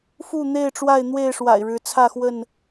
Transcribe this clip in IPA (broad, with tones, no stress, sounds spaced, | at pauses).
f u˥˨ n̪ e˥˨ ɪ̯ ʈ͡ʂ w a˥˨ ɪ̯ n̪ w e˥˨ ɪ̯ ʂ w a̰˨˩ ɪ̯ ɻ ɻ̩˨˦ t͡sʰ ä˥˨ x w ə˥˨ n